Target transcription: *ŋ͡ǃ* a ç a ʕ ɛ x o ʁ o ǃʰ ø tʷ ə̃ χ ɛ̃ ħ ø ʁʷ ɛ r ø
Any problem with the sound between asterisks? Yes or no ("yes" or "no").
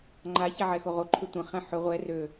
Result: no